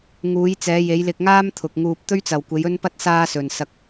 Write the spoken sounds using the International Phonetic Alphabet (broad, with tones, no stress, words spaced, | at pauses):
ŋuː˨˧j t͡sɛː˨˧je˨˧jlɪ˧k̚ŋaː˥m t̪ʰʊ˨k̚ŋuː˧p̚ t̪ɵ˥ɥt͡sɐ˨wkʷe˨˧j ɵ˥npɐ˥t̚ saː˥sɵ˨n sɐ˧k̚